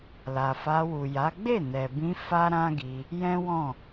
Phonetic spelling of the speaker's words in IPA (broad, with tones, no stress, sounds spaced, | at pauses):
l a˨ f a˧ w u˨ j a˨˦ ɡ͡b e˦˨ n ɛ˨ b ĩ˧ f a˦ ɾ ã˦ ɡ i˧ | j ɛ̃˦ w ɔ̃˦˨